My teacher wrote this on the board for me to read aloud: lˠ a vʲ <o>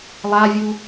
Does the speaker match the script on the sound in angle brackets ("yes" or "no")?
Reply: no